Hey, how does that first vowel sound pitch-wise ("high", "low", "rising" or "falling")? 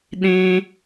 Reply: low